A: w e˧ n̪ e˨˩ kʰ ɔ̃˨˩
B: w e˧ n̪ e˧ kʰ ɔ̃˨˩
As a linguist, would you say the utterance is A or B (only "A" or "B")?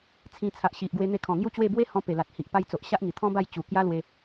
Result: B